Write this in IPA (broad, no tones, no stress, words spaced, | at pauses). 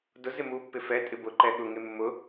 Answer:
dʊ zɪmu pːɪfɛ tʼɪbʊ ǃɛɠʊ ŋemːʊ